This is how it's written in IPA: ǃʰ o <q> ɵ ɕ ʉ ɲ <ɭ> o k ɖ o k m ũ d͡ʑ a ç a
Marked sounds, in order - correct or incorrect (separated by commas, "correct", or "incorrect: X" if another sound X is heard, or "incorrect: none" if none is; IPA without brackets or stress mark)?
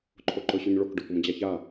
incorrect: ǃ, correct